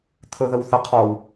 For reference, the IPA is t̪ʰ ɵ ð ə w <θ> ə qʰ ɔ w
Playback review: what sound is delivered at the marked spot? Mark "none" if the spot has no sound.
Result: θ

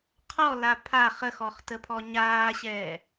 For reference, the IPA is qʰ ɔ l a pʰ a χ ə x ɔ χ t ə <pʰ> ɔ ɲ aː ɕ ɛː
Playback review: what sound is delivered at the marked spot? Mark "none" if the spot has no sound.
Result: pʰ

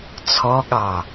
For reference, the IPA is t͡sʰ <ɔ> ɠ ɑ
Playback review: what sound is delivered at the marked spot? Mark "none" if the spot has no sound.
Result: ɔ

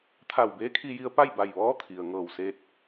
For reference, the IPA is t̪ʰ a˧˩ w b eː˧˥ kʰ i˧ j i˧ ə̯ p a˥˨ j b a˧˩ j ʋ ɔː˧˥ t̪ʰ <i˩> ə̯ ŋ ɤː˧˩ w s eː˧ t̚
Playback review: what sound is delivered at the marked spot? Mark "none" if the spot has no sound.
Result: i˩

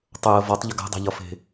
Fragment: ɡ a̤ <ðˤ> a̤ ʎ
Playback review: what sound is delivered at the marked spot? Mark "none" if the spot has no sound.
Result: dˤ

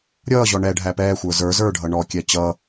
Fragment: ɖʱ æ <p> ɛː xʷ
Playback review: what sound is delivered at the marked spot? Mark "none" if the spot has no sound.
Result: p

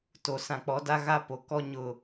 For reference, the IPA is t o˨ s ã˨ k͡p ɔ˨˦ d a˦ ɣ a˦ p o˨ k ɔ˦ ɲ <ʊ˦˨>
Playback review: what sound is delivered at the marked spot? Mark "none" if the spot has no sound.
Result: ʊ˦˨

